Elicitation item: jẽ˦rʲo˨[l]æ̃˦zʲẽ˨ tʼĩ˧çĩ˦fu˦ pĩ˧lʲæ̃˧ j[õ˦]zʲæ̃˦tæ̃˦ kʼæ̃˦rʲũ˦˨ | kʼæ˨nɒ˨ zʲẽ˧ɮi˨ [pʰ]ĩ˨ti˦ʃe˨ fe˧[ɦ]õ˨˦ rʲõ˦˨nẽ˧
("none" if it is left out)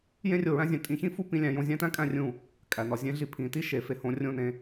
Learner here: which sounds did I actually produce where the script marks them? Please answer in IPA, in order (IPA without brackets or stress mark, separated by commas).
ɹ, õ˧, pʰ, h